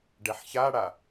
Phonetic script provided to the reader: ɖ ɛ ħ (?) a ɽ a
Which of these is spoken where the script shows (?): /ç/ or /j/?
ç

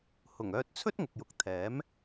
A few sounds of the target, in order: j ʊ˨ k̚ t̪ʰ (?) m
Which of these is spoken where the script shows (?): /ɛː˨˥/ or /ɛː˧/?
ɛː˨˥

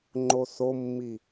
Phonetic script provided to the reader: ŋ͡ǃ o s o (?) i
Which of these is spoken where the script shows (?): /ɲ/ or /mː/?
mː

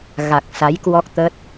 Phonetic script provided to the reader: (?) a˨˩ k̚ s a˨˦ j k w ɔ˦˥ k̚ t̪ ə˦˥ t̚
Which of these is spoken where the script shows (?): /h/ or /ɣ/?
ɣ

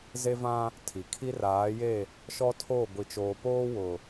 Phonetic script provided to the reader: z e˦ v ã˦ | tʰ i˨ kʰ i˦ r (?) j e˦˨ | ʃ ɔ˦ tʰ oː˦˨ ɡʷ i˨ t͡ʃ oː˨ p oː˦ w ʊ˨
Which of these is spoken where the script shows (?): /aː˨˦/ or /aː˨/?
aː˨˦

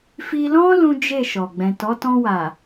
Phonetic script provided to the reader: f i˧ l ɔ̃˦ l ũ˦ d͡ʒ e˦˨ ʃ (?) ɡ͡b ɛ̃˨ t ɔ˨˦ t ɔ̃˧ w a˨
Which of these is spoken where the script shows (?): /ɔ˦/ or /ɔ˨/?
ɔ˨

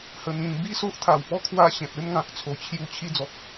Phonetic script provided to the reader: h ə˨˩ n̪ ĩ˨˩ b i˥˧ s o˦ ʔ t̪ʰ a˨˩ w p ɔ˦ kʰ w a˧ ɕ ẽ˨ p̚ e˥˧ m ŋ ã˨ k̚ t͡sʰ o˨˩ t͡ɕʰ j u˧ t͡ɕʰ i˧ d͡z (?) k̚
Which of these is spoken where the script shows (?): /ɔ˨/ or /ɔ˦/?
ɔ˨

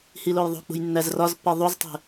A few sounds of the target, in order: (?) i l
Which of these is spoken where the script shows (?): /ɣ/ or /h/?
h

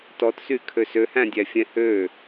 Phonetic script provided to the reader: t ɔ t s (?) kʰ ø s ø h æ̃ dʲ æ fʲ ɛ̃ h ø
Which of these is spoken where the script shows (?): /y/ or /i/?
y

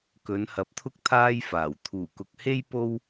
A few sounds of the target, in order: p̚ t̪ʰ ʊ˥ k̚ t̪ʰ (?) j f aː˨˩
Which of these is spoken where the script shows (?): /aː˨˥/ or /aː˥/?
aː˥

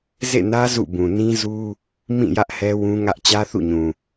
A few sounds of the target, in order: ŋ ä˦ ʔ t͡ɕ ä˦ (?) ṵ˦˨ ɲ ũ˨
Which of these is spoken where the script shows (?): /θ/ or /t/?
θ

